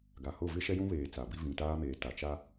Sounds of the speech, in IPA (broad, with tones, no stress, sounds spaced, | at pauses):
ɡ a˨ h ʊ˦˨ v ɪ˦ ʃ ɛ˦ j ũ˦ β eː˨ t͡s a˨ b i˦ v ĩ˨ t aː˦ m eː˨ t a˨ t͡ʃ a˦